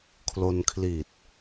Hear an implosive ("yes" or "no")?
no